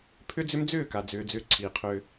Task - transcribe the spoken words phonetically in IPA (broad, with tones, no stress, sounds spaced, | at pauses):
pʰ ʏ˦ d͡z ʏ˦ m d͡z ʏː˦˨ k a˨ d͡z ʏː˧ d͡z ʏː˦ ǀʰ iː˨ qʰ ʏː˧